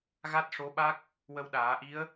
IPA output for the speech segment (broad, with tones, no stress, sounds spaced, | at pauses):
ɣ a˦˥ t̚ ʂ o˧˥ ɓ a˦˥ k̚ | w ə˧ w ɗ aː˨˩˦ ʔ i˧˥ ə̯